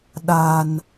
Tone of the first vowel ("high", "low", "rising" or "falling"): low